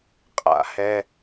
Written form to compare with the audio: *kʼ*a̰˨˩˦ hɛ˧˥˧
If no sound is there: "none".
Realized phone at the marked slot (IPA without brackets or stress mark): qʼ